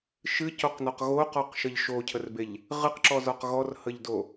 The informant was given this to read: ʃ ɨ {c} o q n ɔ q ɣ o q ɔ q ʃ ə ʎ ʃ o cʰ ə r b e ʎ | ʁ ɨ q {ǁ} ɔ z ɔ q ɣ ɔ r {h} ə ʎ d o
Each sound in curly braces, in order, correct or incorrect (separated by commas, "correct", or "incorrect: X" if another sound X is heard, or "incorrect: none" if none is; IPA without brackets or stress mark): correct, correct, correct